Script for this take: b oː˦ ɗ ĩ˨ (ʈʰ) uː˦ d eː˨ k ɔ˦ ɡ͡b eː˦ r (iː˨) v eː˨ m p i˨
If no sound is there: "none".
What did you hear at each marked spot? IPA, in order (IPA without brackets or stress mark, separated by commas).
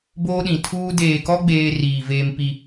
tʰ, iː˨